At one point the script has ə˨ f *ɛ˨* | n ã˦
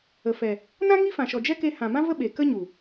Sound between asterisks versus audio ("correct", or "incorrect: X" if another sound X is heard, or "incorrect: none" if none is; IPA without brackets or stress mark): correct